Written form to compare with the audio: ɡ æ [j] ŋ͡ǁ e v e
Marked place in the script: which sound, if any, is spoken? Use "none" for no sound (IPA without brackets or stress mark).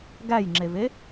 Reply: j